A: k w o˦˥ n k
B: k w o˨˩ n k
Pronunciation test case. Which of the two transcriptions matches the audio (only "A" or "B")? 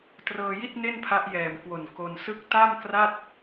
B